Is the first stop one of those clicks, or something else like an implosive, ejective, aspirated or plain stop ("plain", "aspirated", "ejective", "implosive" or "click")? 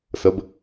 plain